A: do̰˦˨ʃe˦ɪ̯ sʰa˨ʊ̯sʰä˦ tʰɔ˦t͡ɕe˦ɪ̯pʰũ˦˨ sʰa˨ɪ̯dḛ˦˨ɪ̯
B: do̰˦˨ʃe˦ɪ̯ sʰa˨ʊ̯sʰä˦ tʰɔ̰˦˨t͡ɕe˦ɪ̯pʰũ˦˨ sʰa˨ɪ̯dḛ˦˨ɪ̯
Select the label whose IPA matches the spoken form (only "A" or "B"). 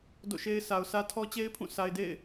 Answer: A